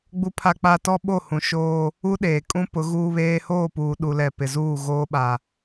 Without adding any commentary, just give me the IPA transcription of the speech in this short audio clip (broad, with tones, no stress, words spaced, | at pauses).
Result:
ɡ͡bu˦pʰa˦k͡pa˦ tɔ˦ɓo˦˨hũ˨ ʃoː˦ | u˦ɗeː˨kʼũ˦ pʊ˨˦ɣuː˦βeː˦ hoː˦˨puː˨ɗu˨lɛ˨ pɪ˨zuː˦˨ ɣoː˦ɓa˨